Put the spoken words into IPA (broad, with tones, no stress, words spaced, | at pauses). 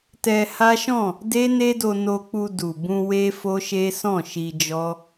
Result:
tɛ˧ha˦ʃɔ̃˦˨ | de˦ne˦do˧ no˧k͡pu˧ du˨bũ˧ we˦fo˦ʃe˦sɔ̃˦˨ ʃi˧d͡ʒɔ˦